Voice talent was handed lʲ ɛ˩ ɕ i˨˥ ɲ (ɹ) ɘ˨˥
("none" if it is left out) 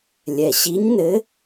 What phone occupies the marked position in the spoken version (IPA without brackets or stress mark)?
n